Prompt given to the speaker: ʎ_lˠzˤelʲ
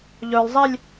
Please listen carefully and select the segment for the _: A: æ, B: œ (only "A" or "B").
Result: B